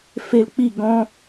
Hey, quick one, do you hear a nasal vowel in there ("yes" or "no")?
yes